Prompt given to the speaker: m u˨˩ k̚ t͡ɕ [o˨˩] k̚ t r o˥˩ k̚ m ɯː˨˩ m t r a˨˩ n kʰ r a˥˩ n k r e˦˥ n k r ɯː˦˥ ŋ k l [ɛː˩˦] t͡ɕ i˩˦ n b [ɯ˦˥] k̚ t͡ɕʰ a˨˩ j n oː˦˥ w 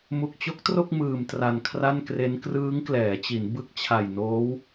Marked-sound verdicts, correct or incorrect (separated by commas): incorrect, correct, correct